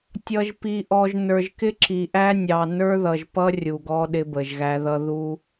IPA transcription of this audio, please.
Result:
tʲ ʌ˨ ʒ p i˨ ʔ ɔ˨ ʒ n ə˞˨ ʒ k ɪ˦ ǁ i˨ ʔ æ˦ nʲ ɑ˨ n ə˞˦ ð ʌ˨ ʒ p ʌ˦ rʲ u˨ ɡ ɔ˦ ɗ ɪ˦ b ə˨ ʒ ɣ æ˦ ð ʌ˦ ð u˦

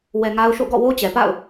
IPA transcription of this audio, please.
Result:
w ɛ˨ ŋ a˦ ʊ̯ ʃ o̰˦˨ ɡ ɔ̰˦˨ w o˦ t͡ɕ ɛ˨ p a̰˦˨ ʊ̯

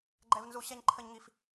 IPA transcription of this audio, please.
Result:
ɡ͡ǃ ɛ˦ v n z u˦ ɕ ɛ˦ ɲ ǃʰ ə˦ ɲ ŋ i˦ f

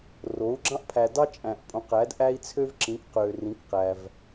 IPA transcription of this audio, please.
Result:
r o˩˥ u̯ ɡ͡ǁ ɑ̃˦ ʔ pʰ æ˨ d ɑ˦ t͡ʃʼ æ̃˨ ʔ pʼ õ˩˥ q æ˩˥ d ʔ æ˦ i̯ t͡sʰ ø˦ v ǁ ĩ˩˥ k q ø˨ r ĩ˩˥ k q æ˨ v

